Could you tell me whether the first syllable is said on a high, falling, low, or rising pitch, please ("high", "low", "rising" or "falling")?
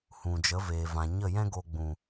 low